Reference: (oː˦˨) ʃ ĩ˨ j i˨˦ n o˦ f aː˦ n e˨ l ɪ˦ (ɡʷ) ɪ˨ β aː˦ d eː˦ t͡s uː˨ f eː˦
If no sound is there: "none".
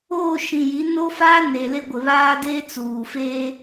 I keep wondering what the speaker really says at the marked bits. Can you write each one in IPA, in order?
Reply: oː˦˨, ɡʷ

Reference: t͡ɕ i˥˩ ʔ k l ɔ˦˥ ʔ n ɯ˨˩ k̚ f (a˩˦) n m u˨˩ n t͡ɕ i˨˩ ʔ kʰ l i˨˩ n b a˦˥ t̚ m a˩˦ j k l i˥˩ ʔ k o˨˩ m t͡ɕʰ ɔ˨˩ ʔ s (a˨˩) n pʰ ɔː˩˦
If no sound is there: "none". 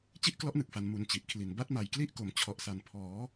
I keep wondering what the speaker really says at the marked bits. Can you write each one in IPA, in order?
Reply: a˩˦, a˨˩

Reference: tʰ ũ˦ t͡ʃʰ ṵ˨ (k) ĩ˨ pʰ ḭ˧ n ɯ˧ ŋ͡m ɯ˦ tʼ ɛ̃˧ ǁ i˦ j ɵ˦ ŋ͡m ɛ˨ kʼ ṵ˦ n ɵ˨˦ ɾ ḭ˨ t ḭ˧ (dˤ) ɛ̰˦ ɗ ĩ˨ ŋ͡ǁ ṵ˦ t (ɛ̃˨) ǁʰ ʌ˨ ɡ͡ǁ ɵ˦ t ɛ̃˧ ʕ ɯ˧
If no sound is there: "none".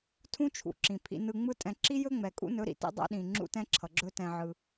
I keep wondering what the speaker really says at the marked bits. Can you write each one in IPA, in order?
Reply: ǁ, dˤ, ɛ̃˦

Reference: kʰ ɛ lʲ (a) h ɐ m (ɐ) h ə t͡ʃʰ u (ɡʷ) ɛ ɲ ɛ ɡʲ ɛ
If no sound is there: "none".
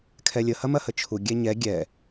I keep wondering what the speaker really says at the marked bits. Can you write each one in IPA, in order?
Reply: ə, ɐ, ɡʲ

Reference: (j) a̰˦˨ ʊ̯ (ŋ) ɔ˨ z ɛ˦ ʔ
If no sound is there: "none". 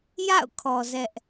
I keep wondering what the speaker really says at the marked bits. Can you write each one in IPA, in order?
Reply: j, kʰ

